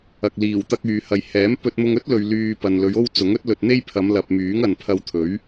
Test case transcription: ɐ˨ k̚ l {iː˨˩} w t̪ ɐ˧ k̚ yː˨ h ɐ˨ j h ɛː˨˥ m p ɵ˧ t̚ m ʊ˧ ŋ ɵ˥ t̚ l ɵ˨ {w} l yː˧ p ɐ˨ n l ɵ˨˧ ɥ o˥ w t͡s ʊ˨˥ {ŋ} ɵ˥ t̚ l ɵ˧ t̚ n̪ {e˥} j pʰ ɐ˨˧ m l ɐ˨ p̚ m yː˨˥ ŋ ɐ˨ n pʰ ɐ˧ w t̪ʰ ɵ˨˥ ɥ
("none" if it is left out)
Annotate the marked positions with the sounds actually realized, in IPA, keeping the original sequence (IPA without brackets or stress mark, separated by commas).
iː˨˩, ɥ, ŋ, e˥